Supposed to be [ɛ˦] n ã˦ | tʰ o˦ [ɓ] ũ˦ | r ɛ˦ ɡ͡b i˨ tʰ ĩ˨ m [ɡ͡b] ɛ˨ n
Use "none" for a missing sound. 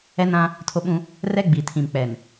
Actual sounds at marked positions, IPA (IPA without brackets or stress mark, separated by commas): ɛ˦, ɓ, k͡p